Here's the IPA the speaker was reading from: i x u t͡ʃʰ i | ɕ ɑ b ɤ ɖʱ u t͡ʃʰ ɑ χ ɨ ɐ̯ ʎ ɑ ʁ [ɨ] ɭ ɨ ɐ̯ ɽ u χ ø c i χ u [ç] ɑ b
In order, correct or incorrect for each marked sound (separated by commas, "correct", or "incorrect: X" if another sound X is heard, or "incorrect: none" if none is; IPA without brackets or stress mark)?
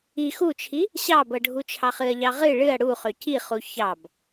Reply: correct, correct